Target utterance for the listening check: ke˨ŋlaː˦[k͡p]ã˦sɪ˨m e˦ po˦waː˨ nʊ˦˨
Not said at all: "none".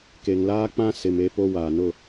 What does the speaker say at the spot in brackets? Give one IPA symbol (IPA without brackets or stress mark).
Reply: k͡p